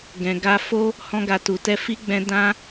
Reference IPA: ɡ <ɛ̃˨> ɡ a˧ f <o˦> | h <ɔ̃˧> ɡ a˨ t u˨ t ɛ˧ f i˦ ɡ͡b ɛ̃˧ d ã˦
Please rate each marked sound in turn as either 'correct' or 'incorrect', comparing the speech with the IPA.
correct, correct, correct

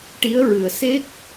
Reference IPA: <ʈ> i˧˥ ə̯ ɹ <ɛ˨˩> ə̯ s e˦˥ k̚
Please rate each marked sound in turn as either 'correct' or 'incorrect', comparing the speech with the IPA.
correct, incorrect

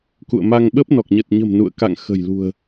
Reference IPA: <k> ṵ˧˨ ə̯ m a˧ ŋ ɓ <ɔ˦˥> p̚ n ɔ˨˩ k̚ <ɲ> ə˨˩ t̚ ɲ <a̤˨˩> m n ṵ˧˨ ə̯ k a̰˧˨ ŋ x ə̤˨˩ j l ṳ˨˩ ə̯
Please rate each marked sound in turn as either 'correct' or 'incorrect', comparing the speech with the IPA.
correct, incorrect, correct, incorrect

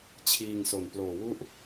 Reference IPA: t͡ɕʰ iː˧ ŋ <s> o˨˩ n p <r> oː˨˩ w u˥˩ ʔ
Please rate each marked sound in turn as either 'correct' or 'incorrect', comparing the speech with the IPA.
correct, incorrect

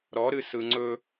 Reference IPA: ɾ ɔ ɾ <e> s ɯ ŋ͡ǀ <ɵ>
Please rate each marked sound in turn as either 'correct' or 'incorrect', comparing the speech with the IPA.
incorrect, correct

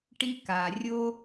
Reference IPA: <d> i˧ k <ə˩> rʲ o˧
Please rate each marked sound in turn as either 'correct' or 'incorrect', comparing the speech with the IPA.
incorrect, incorrect

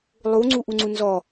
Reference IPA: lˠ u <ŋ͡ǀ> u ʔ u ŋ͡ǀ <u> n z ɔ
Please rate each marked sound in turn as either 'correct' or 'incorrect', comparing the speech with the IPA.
correct, correct

